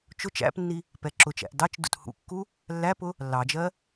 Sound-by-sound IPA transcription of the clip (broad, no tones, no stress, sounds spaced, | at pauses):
t͡ʃ ʊ t͡ʃ æ̰ p nː i | p ɛ ǁ ʊ t͡ʃ æ̰ ʔ d ɑ t͡ʃ d ṵ t h ṵ kː u | lː æ p ʊ | lː ɑ d͡ʒ ɜ